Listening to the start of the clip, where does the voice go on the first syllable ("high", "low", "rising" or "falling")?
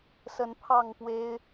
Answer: rising